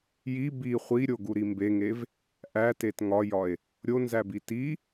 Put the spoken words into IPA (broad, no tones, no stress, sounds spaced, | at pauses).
j i b i χʷ i ɾʲ o ɡ u ɾ i m b e ŋ e v | ʔ æ t e t ŋ ɒ j ɒ e̯ | ɾʲ o n z æ b i t i